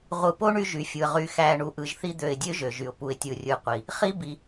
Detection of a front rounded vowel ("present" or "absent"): present